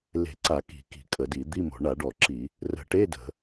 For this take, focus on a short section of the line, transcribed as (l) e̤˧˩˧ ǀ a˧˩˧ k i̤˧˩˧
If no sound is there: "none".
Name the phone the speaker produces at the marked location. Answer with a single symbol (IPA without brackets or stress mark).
l